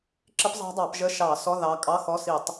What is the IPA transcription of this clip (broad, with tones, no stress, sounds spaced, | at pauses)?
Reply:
ǁ ɪ˦˥ p zˤ ɑ̤˦˥ dˤ ɑ˧˩˧ p ʒ ə˧˥˧ ʃ ɑ˧˩˧ s ɔ˧˥˧ ð ɑ˨˦ kʼ ɑ˧˥˧ x ɔ˧˥˧ s i˧˩˧ tˤ